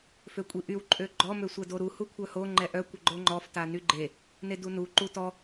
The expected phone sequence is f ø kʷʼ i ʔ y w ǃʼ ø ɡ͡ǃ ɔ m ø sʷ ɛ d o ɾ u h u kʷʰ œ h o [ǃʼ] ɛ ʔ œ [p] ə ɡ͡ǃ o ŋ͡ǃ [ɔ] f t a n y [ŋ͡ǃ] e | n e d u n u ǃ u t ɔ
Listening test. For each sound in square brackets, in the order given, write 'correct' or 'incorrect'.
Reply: incorrect: ŋ͡ǃ, incorrect: kʷ, correct, incorrect: ɡ͡ǃ

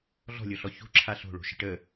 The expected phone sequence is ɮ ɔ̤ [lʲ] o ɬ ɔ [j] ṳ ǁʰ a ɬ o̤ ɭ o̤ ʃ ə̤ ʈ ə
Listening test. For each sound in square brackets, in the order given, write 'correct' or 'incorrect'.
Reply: correct, incorrect: ç

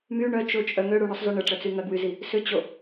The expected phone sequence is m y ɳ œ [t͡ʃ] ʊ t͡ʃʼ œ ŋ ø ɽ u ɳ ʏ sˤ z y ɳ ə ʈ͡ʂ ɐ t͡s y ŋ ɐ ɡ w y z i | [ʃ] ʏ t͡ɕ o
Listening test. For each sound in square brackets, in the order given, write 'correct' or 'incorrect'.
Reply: correct, incorrect: s

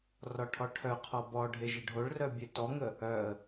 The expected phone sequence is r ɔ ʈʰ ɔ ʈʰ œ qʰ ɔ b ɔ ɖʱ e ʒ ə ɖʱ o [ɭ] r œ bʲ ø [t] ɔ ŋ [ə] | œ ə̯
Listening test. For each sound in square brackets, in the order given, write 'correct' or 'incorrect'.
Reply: correct, correct, correct

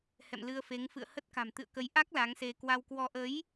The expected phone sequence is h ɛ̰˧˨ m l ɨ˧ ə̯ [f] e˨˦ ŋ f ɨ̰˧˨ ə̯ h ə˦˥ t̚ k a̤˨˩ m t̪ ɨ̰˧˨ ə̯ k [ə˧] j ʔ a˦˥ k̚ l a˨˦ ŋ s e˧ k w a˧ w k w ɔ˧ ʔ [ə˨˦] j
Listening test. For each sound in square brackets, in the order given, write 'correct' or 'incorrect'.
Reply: correct, incorrect: ə˨˦, correct

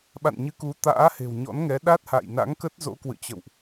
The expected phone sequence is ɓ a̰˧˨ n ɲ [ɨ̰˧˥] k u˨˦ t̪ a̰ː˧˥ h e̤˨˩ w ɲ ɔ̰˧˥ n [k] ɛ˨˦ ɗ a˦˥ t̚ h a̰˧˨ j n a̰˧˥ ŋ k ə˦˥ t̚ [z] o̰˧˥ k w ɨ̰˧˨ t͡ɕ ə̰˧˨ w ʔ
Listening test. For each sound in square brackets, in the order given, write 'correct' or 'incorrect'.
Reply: incorrect: ɨ˨˦, incorrect: ŋ, correct

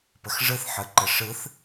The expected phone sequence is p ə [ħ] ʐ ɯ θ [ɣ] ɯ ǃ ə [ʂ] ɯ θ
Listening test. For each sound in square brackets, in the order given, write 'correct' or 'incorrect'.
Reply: incorrect: x, incorrect: ħ, correct

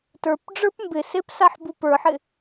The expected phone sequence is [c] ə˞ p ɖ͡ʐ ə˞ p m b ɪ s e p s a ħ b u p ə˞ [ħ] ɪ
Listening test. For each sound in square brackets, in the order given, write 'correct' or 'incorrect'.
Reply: incorrect: t, correct

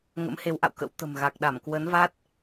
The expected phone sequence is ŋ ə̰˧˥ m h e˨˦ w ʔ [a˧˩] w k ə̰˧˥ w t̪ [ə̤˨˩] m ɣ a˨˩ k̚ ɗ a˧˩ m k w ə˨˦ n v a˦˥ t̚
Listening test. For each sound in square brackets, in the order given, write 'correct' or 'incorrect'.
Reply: incorrect: a̰˧˨, correct

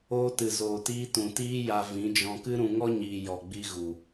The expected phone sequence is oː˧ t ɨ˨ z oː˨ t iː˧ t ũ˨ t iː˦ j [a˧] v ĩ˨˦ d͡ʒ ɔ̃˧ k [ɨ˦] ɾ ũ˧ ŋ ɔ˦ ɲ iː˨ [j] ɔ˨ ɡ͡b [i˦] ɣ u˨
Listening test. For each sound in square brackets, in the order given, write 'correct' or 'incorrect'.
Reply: correct, correct, correct, incorrect: i˧

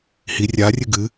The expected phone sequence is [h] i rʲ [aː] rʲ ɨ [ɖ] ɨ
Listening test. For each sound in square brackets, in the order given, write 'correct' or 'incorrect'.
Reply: correct, incorrect: a, incorrect: ɡ

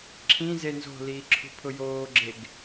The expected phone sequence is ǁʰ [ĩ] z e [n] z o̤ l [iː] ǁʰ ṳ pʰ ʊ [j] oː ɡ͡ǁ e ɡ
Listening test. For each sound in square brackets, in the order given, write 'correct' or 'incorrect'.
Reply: correct, correct, correct, correct

